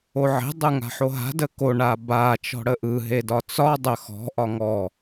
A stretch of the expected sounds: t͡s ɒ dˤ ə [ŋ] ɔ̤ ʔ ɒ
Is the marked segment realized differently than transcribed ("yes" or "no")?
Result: yes